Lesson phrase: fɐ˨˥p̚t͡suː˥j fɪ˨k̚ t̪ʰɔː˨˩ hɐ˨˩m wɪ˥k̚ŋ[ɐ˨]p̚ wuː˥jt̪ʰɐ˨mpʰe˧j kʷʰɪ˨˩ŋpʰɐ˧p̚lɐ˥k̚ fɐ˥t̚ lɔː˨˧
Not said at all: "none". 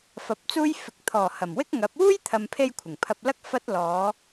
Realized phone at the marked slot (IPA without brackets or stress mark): ɐ˨˥